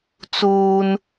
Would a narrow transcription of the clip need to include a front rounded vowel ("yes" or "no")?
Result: no